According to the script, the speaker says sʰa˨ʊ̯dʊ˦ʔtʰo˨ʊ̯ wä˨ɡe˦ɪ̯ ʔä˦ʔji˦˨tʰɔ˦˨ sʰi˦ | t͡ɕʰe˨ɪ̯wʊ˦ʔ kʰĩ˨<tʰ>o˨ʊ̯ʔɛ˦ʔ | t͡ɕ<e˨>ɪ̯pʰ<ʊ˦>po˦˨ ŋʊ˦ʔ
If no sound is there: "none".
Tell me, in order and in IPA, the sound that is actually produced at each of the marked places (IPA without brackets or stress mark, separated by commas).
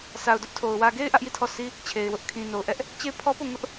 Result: n, e˦˨, ɔ˦